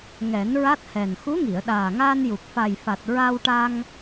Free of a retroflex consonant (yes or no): no